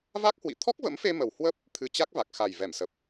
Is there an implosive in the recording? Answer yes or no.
no